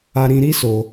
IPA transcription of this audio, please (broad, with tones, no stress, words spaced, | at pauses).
a˧ɾĩ˧ɾi˦ so˧